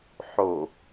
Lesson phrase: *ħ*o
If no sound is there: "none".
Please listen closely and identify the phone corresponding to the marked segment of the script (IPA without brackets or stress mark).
ħ